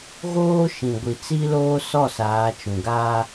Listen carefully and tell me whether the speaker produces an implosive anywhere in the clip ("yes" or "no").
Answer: no